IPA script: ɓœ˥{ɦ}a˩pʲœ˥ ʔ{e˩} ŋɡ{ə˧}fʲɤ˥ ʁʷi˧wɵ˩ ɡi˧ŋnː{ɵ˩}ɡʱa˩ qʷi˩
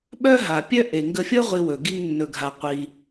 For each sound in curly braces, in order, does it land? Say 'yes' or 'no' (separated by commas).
yes, yes, yes, yes